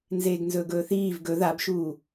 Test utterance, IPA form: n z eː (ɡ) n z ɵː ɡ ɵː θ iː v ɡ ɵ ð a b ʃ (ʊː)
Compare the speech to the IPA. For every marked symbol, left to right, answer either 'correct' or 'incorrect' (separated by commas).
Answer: correct, incorrect